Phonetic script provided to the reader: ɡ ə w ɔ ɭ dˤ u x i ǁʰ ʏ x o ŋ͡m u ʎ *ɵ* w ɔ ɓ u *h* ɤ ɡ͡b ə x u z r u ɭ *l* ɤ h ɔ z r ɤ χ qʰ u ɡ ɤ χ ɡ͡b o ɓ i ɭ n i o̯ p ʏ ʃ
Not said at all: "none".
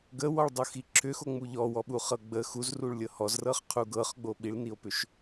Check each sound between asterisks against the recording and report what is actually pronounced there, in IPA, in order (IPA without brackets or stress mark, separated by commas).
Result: ɔ, χ, lʲ